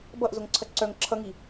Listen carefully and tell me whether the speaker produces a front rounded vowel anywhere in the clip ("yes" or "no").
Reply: yes